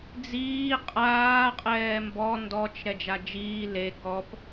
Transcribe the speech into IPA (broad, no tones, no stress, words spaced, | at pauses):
d͡ziː qʼaː qʼɛːmbɔ ndɔt͡ʃ ɾɛd͡ʒad͡ʒiː le kɔp